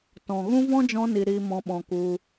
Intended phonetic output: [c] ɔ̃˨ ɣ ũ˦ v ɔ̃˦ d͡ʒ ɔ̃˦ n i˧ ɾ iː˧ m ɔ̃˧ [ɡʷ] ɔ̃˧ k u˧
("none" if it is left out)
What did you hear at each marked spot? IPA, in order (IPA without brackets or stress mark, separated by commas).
t, ɓ